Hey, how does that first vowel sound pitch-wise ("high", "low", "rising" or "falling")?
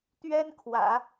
high